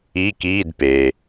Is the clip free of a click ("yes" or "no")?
yes